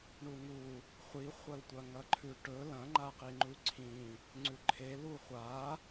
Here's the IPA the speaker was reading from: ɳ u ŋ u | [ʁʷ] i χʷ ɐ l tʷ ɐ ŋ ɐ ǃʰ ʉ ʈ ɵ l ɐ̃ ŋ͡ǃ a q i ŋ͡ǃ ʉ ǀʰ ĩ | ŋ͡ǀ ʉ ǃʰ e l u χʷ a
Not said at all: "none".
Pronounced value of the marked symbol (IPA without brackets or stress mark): χʷ